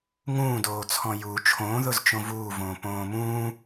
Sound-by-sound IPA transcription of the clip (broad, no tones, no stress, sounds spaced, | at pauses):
ŋ ũː d oː t͡sʰ ɔ̃ j u t͡ʃʰ õ ð ʊ z t͡ʃ õ v uː v õː p õː m ũː